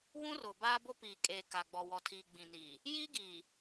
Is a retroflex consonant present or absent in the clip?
absent